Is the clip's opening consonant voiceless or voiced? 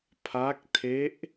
voiceless